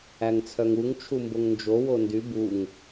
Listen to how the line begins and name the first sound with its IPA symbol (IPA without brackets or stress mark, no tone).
æ